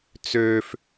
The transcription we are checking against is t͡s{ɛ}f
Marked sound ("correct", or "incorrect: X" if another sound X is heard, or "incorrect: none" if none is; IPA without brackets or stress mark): incorrect: ø